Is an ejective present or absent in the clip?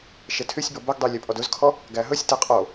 present